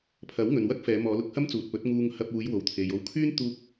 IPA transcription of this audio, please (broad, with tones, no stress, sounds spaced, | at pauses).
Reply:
pʰ ɐ˨˥ w ŋ ɵ˨ n w ɐ˥ k̚ f ɛː˨˧ m ɔː˨˧ l ʊ˨˥ k̚ h ɐ˥ m t͡s uː˨ t̚ p ɵ˨˥ t̚ ŋ uː˧ ŋ h ɐ˧ p̚ uː˨˧ j w o˨ w t̪ʰ e˨ j o˧ w kʰ yː˥ n t̪ uː˧ k̚